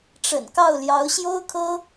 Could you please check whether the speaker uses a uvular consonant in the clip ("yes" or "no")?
no